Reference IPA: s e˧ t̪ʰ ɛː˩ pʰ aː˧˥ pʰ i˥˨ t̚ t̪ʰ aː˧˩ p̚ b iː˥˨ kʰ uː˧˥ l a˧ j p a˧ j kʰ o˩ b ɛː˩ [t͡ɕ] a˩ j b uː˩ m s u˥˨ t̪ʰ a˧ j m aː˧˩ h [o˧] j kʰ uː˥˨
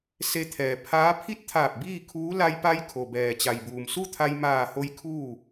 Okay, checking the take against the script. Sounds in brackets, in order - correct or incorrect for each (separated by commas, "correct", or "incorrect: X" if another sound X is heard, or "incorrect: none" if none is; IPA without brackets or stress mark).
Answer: correct, correct